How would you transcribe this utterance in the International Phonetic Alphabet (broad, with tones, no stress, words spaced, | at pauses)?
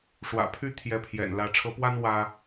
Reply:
ʂwä̰˨˩pʰy˥˩ t̪ʰjɛ˧˥pʰjɛ̰˨˩n lä˧˥ ʈ͡ʂʰɤ˧˥pwa˥n wä˥